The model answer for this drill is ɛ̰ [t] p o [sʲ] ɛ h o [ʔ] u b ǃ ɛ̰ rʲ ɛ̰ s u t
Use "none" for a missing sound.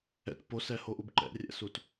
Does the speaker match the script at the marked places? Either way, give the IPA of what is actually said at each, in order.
t, s, ʔ

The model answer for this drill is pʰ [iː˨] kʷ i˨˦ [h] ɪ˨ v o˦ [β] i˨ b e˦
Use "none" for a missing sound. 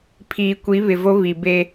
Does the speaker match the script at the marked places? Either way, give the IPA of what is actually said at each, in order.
iː˨, β, β

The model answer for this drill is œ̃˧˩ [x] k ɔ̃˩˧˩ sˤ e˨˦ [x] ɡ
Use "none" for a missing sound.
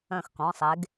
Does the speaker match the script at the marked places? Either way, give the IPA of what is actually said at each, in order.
x, none

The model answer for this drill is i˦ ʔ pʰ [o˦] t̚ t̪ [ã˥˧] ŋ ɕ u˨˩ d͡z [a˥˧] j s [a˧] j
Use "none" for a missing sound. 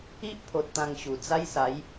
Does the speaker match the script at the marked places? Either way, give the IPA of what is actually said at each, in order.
o˨, ã˧, a˦, a˨˦

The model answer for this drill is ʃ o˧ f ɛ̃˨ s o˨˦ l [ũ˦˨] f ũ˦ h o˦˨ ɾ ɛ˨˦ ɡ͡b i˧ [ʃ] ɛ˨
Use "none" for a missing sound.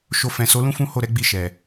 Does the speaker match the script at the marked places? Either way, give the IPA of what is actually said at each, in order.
ũ˦, ʃ

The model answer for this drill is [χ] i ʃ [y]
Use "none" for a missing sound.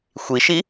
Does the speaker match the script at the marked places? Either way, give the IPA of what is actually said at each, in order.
xʷ, i

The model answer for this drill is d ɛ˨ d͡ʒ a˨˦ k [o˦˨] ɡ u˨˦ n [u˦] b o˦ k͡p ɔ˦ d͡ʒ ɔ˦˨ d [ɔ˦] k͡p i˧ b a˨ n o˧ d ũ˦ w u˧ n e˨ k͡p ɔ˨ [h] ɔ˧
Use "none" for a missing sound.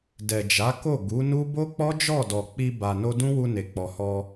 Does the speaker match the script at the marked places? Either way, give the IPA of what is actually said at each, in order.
o˦˨, u˦, ɔ˨, h

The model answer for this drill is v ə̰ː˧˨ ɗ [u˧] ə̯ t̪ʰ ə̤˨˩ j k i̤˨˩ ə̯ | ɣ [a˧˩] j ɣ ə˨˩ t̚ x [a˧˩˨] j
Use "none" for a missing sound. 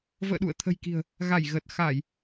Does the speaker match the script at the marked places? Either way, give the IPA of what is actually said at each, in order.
ṵ˧˨, a˧˩, a˧˩˨

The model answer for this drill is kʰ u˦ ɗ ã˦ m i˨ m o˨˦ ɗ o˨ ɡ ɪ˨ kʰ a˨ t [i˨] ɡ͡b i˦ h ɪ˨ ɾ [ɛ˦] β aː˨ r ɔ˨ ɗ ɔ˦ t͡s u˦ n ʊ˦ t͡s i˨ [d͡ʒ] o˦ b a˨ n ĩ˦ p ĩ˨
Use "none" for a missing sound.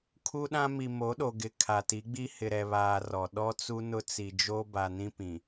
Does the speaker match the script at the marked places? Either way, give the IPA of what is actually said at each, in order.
i˨˦, ɛ˨, d͡ʒ

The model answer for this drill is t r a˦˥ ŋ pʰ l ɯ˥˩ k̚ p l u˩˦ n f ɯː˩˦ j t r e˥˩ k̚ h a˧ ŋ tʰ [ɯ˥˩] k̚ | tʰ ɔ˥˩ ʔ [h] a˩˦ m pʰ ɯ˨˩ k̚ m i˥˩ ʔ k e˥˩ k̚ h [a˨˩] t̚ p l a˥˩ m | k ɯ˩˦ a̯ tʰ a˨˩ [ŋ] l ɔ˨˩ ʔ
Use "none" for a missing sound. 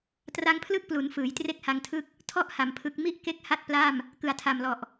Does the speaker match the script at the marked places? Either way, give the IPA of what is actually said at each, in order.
ɯ˥˩, h, a˥˩, m

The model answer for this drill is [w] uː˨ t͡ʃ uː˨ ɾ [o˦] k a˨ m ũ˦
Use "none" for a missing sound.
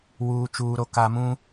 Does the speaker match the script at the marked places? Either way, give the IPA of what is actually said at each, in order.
w, o˨

